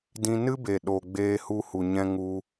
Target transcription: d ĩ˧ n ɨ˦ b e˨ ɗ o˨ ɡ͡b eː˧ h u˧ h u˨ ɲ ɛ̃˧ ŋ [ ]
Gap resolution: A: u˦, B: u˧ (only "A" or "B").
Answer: B